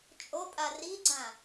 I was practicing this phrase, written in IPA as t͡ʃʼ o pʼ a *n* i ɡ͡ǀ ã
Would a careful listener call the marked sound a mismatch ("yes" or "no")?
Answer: yes